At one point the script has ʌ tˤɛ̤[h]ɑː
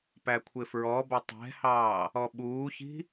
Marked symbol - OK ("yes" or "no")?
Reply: yes